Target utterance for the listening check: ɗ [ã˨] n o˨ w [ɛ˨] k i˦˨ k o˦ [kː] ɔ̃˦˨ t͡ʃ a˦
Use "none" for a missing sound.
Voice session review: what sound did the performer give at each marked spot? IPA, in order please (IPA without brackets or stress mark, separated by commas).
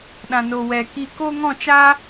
ã˨, ɛ˨, ŋ